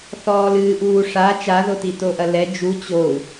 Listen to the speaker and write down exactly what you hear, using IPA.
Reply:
θ ɔː l ɨː ʔ uː ʂ a t͡ʃ a ð o t i t o ʔ ɐ l ɛ d͡ʒ u t͡ɕ o u̯

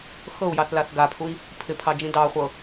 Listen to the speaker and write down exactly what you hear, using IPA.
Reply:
x ɤ u̯ j ɑ θ l a θ ɡ a pʰ u i̯ | pʰ ɪ pʰ ɑ d͡ʒ ĩ d ɑ χʷ ɤ

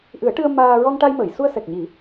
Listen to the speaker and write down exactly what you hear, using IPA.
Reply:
ʔ ɨ˨˩˦ ə̯ ʈ ɨ˧ ə̯ m aː˧ ɹ ɔ˧ ŋ ʈ a˧ j m əː˨˩˨ j s u˧ ə̯ s ɛ˨˩ k̚ ɲ i˨˩˦

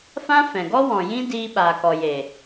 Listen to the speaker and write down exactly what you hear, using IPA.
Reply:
f ã˦ f ɛ̃˨ ɡ ɔ˦ w ɔ̃˨ j ĩ˦ d iː˧ ɓ aː˨ k ɔ˨ j e˨

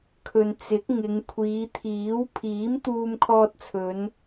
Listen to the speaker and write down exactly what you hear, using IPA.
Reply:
kʰ ɵ˨ n t͡s ɪ˨˥ k̚ ŋ ɪ˨˧ ŋ kʷʰ iː˨˧ t̪ʰ iː˨˥ w pʰ iː˨˥ m t̪ uː˧ m kʰ ɔː˧ t̚ t͡sʰ ɵ˨˧ n

